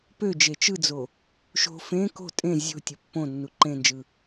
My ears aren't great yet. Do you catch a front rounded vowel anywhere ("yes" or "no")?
yes